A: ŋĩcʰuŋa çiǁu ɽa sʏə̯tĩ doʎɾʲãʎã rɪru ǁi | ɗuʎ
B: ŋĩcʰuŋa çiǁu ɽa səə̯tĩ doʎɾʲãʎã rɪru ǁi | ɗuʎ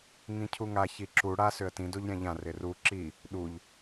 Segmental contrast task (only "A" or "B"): A